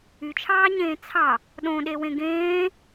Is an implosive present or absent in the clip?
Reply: present